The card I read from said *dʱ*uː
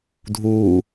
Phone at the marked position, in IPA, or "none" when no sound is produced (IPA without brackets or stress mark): dʱ